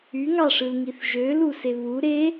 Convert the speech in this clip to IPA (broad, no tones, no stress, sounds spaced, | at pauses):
y ŋ ɑ ʂ ɯ l ŋ i θ ʒ ø l u s e β u ɾ e